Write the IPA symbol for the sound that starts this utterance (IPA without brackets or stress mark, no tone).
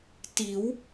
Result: t